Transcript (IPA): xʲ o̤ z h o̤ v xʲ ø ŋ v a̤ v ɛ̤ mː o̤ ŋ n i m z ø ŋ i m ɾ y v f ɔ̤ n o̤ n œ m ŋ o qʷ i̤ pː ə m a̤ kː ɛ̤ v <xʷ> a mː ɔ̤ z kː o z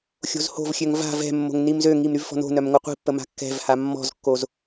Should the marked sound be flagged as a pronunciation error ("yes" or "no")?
yes